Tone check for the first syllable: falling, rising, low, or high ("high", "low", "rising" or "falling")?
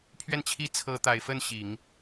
falling